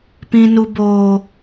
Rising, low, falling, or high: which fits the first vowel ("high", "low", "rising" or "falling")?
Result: high